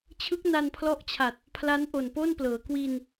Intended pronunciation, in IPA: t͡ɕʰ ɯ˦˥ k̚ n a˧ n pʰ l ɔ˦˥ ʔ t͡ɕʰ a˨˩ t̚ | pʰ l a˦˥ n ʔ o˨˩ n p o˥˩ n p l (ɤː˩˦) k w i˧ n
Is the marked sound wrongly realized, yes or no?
no